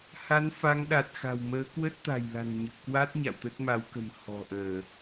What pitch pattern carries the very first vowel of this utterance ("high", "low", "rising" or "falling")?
rising